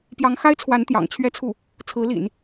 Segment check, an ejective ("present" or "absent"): absent